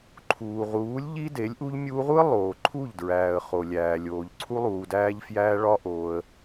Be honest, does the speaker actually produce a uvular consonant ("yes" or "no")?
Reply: yes